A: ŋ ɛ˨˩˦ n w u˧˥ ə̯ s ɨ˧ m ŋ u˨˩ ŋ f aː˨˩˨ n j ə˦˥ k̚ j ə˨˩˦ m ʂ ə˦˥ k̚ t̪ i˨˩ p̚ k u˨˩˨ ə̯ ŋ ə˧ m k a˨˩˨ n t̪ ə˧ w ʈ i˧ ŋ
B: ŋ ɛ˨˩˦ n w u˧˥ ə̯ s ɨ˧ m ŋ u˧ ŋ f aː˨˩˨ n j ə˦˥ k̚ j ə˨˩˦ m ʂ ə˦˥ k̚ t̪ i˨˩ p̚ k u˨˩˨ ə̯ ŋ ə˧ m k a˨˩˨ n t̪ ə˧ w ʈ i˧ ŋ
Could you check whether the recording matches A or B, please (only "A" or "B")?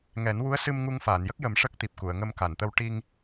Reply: B